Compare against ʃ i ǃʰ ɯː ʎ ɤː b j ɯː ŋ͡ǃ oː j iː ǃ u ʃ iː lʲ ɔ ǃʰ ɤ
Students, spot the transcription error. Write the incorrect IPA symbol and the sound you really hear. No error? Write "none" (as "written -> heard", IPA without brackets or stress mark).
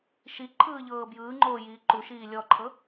none